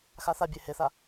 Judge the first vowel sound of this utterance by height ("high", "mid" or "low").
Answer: low